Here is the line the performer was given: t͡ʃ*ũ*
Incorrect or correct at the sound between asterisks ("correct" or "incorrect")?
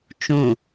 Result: correct